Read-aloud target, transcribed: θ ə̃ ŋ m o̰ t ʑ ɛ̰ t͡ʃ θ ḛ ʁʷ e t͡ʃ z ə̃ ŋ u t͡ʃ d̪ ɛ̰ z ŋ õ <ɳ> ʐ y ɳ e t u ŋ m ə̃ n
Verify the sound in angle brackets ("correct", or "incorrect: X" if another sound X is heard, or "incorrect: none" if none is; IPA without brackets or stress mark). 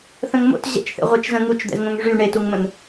incorrect: ŋ